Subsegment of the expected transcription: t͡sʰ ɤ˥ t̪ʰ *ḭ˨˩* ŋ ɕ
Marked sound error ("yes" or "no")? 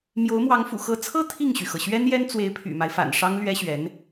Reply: yes